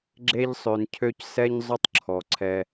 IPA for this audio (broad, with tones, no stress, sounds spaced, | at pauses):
ɡ͡ǁ e˦ ʎ sˤ ø˨ n cʰ ø˦ c s ɛ˦ ɲ zˤ ʊ˦ tˤ ǁʰ ɔ˩ ǀʰ ɛ˨